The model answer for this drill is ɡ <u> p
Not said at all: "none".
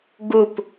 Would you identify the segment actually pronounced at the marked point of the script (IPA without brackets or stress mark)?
u